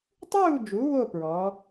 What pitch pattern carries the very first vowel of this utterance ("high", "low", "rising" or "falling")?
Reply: falling